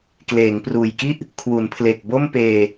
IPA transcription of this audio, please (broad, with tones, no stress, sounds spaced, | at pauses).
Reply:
k l eː˩˦ ŋ p r uː˨˩ j k i˥˩ ʔ | kʰ w u˩˦ n pʰ l e˨˩ k̚ b o˥˩ m p eː˧